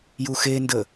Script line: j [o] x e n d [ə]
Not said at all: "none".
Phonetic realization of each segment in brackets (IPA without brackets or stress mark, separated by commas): u, ə